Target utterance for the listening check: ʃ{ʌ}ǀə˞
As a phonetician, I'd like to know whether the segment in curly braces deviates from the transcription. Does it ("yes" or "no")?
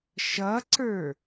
no